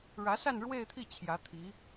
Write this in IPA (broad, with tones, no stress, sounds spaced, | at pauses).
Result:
ɻ ä˧˥ s a˥˧ n ɻ w e˥˧ ɪ̯ t̪ʰ i˥˩ t͡ɕʰ j ä˧˥ t̪ʰ i˧˥